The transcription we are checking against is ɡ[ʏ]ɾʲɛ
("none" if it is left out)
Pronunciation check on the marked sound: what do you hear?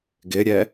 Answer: ɪ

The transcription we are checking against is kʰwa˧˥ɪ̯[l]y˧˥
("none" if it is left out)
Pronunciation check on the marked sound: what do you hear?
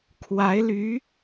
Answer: l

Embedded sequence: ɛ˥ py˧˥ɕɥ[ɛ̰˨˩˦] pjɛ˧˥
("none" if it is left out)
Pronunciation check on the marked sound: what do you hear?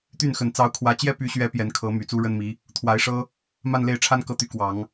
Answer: ɛ˧˥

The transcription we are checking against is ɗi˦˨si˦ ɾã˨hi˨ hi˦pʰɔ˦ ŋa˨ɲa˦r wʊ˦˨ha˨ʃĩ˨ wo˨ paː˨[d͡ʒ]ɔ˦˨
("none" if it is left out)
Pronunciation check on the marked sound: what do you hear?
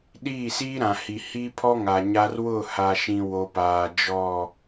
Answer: d͡ʒ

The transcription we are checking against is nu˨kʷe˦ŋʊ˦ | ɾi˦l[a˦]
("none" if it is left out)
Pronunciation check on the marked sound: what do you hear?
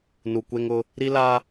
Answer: a˦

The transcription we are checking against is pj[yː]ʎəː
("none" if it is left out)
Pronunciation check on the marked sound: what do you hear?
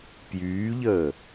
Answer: yː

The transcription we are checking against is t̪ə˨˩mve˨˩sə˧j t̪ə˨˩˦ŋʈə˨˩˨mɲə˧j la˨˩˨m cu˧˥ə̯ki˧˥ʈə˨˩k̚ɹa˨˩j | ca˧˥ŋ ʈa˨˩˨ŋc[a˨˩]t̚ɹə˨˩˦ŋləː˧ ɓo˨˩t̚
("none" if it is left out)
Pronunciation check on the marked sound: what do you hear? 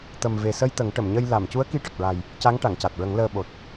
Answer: a˨˩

